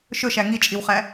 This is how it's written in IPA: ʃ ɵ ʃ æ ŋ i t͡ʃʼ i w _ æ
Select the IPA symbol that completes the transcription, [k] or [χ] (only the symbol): χ